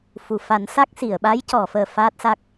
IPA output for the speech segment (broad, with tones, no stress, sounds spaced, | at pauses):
f u˨˩˨ f a˨˩˦ n s a˦˥ k̚ s i˨˩˨ ə̯ ɓ a˧˥ j c ɔ˨˩˨ f əː˨˩ f aː˦˥ t̚ s a˦˥ k̚